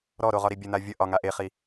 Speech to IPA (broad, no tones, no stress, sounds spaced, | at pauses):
ɾ ɔ ɾ o ʁ ɒ ɾ i bʲ ə n̪ a vʲ ə ʔ ɒ ŋ a ʔ e χ i